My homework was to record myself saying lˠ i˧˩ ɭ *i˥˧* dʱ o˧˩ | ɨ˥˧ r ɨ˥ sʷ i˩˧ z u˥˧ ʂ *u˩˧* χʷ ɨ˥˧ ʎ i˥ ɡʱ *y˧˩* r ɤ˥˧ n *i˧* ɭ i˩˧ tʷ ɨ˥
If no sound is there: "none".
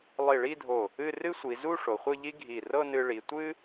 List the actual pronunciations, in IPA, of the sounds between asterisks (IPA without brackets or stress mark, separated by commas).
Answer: i˥˧, o˩˧, i˧˩, ɨ˧